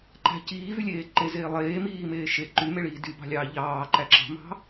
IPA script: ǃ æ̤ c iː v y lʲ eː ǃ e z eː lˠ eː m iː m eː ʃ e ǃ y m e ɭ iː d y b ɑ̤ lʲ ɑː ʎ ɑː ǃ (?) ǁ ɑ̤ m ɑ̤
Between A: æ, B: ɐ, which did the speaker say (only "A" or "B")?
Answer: A